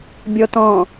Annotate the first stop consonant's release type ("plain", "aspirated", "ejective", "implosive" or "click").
plain